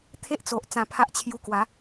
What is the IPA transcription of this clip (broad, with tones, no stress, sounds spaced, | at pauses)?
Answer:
t̪ʰ e˦ ʔ t͡s o˨ ʔ t͡s ã˧ pʰ a˦ ʔ t͡ɕʰ j u˧ k w a˨˦